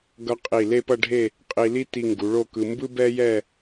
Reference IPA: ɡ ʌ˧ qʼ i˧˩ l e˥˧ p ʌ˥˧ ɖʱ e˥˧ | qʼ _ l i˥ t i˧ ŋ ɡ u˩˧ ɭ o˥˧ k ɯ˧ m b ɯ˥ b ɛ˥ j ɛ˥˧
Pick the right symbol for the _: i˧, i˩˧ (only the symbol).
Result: i˧